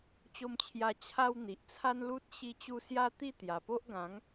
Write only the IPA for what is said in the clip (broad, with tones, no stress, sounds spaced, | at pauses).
t͡ɕ o˧ m t͡ɕʰ j a˧ t͡ɕʰ a˧ w n̪ i˨ ʔ t͡sʰ a˦ n l u˦ t̚ ɕ i˧ t͡ɕ u˧ s j a˦ t̪ i˥˧ t̪ j a˨˩ p o˦ ʔ ɡ ã˨˦ ŋ